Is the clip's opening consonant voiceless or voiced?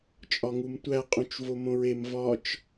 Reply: voiceless